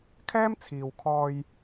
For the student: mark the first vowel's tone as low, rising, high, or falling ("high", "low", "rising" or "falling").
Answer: high